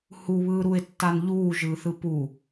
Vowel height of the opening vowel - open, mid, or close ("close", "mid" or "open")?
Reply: close